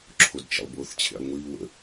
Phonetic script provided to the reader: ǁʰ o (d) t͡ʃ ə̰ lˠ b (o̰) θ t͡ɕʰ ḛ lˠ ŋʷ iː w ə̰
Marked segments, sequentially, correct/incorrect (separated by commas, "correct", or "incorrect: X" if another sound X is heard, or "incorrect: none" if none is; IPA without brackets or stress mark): correct, incorrect: o